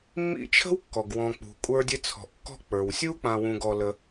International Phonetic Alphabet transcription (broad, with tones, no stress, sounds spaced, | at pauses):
mː ḭ˦ t͡ʃʰ ə̤˥ w kː ɔ˩ ɡ w ɔ̃˨ k͡p ṳ˩ kʷʼ ə˞˦ dʲ ɘ˦ t͡sʰ ɔ̤˨ ʔ kː ɔ̤˦ k͡p ə˞˩ w sʲ u˥ k͡p ã˨ w ũ˨ ɡ ɔ˨ l ə˨